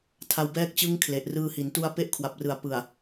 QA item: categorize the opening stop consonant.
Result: aspirated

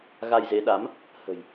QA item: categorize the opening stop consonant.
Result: implosive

